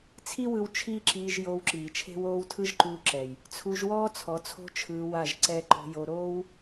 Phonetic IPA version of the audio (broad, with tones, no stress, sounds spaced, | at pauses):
t͡sʰ i˦ w ɯ˧ w t͡ʃʰ iː˦ ǁ iː˧ ʒ j oː˧ w ǁ iː˨ t͡ʃʰ e̤˦ w oː˦ w tʰ ɯ˦ ʒ ǃ uː˧ ǁ ɛ˨ j | t͡sʰ u˧ ʒ w ɔː˦ t͡sʰ ɔ˨˦ t͡sʰ o̤˦ t͡ʃʰ ɯː˧ w a˦˨ ʒ ǀ ɛ˦ ǃ o̤˧ j o˧ ɾ oː˦ w